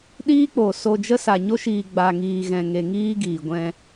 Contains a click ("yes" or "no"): no